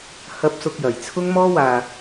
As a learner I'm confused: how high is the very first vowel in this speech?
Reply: low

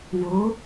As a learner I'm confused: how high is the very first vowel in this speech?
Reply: mid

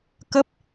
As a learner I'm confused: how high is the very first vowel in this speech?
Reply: mid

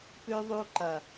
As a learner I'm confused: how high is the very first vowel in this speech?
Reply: high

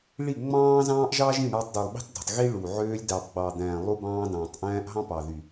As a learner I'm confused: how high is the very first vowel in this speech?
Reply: high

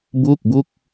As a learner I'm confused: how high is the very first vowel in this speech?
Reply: high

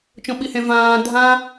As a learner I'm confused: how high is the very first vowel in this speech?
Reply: mid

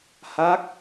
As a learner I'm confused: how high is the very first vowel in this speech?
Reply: low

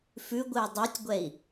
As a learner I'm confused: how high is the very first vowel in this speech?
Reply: high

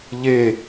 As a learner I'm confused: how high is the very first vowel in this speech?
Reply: mid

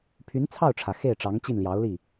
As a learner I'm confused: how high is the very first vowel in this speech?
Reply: high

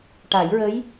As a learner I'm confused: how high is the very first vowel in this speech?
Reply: low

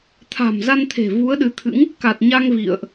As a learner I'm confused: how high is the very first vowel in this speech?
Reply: low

